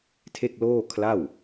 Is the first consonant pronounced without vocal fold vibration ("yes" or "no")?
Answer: yes